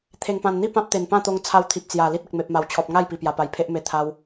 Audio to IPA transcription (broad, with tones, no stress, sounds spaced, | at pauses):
t̪ʰ e˨˩ ŋ p ã˨˩ n n̪ i˥˧ p ã˦ p̚ t̪ e˨˩ n p ã˥˧ t̪ o˧ ŋ t͡sʰ a˧ w t̪ʰ i˨ p̚ t͡s j a˨˩ l i˦ t̚ ə˨ k̚ m e˨ p̚ m a˨˩ w t͡ɕʰ ɔ˨ p̚ ŋ a˥˧ j p i˨˩ p j a˨˩ p a˨˩ j pʰ e˦ ʔ m e˧ t̪ʰ a˧ w